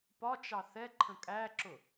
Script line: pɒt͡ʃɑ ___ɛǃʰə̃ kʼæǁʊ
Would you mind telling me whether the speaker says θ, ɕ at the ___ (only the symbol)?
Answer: θ